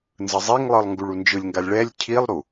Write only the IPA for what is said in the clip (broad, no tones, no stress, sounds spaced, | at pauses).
n z ɯ zˤ e ŋ lˠ ɯ lˠ ŋ ɡ u ɭ u n d͡ʒ ɯ lʲ ŋ ɡ a lʲ ɭ ɛ lʲ cʰ i lˠ ɾ u